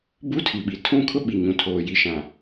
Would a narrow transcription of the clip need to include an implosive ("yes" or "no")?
yes